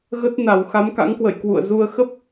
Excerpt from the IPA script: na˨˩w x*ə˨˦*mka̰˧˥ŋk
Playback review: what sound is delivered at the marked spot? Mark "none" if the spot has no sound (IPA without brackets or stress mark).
a˨˦